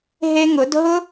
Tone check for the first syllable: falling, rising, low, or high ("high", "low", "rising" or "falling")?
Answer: high